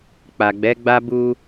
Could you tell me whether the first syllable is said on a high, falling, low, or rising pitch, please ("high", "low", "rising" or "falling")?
low